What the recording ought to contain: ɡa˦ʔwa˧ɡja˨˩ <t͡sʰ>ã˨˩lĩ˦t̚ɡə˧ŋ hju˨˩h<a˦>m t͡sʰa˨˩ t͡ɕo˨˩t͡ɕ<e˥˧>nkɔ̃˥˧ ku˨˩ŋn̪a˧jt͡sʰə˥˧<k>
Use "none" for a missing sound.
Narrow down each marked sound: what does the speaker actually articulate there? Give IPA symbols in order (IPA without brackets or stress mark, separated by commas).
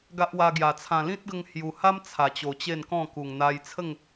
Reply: t͡sʰ, a˦, e˥˧, ŋ